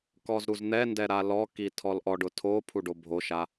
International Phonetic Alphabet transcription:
kɔzɾuzn̪ɛndɛ ɾalɔki tʰɔlʔɔɖʊ tʰo pʰuɖobʱoʃa

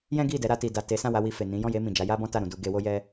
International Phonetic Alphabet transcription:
jɛ̃˦ ɡi˦˨dɛ˨˦ ɾa˧ti˨da˨ te˨˦sã˦˨wa˧ wi˧fe˨ nĩ˨˦ jɔ̃˦˨je˧ mĩ˨d͡ʒa˨˦ja˦bɔ̃˦ ta˦˨ɾũ˧du˧ ɡe˧wo˦jɛ˦

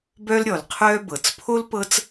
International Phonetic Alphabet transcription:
bœ˥lɾʲɔ˩lqʰœː˥ bɤ˩t͡s pʰo˥lpɤ˦t͡s

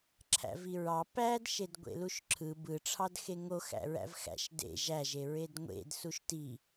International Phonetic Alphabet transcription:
ǁʰæ̰viɹɑ pæd ʃedɡʷḛluʃǁʰɯ bɯ ʈ͡ʂʰɑdxeŋo xæ̰ɹæ̰vxæ̰ʃ dḛ ʒæʒe ɹedŋʷḛd suʃti

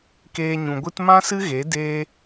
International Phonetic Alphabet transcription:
keː˧ɲũ˨ɡʷɨ˦t mã˦sɨ˦ɣe˨˦ deː˧

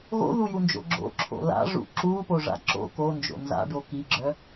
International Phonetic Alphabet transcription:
ɣo̰ðujund͡ʒo̰ ɡ͡ǁo̰ǁʰo̰ la̰ʐṵ ǁupoʐa̰ ǁo̰ kond͡ʒo̰ nza̰ɖo kiɡ͡ǁœ

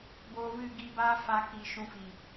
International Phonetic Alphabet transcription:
boː˧vɨ˦˨ɡiː˧baː˦ fa˧ki˨ ʃũ˧fi˨

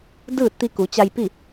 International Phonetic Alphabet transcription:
dɯː˥˨t̚ t̪i˧ ku˩˧t͡ɕa˧j pi˥˨

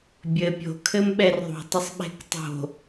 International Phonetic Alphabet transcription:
bʲɘ pʲo̤kʰɘm ɓɛrðˤṳtˤɐsˤ ɓɛ̤ktˤo̤

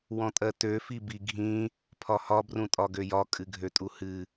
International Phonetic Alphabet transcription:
wɔ̃tʼɜtø fibiɡʱĩ | pʰɒhɒ brũtʼɒɡøjɒ kʼɨɡʱøtʼuhɨ

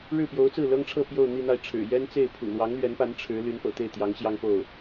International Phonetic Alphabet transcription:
ɻɻ̩˥˩pjo˧˥ʊ̯t͡sɹ̩˥˩ lɤ˥ŋʈ͡ʂʰɤ˥˧ pjo˥˧ʊ̯n̪i˥˧n̪a˥˩ɪ̯ʈ͡ʂʰɻ̩˨˩ jɛ˥nt͡se˥˩ɪ̯ pʰṵ˨˩lwɑ˧˥ŋlɥɛ˧˥npa˧˥n ʈ͡ʂʰɻ̩˧˥ ly˧˥npɤ̰˨˩t̪e˥˩ɪ̯t̪jɑ˧˥ŋ ɕjɑ˥ŋpo˥˩ʊ̯

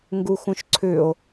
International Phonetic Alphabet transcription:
ŋɡuxũʃǀʰʏo̯

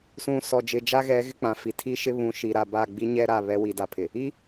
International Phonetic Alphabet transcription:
sũ˨ sɔ˨d͡ʒɪ˨d͡ʒa˦ɣɛ˨˦ ɣɪ˦k͡pã˨fi˨ tʰi˦ʃɪ˦βũ˨ ʃi˨ɾa˨ ba˦˨ɡ͡bi˦ɲɛ˦ɾa˦˨ βɛ˦ wi˨da˨pʰɪ˨ | i˦

